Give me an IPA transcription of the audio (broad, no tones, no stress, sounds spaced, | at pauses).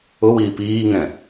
ʊ w iː p iː ŋ ɛ̃